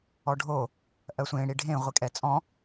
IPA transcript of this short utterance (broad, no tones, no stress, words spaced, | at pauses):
ɔɖʱo | ʔɜsʷẽ ɽiɖʱẽ ʁʷikʼɛt͡sʼɔ̃